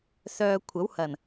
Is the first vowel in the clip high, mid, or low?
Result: mid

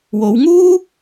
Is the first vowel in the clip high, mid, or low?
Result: mid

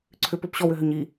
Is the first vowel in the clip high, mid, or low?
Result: high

